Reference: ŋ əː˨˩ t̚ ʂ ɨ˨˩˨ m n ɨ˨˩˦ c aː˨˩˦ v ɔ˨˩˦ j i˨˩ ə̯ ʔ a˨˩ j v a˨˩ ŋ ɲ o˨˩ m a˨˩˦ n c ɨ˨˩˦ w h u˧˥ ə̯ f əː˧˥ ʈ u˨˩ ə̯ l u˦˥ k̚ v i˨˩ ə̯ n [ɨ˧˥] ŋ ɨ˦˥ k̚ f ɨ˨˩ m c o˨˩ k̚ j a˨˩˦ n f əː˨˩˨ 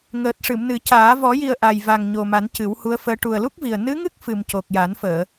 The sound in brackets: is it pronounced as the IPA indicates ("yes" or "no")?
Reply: yes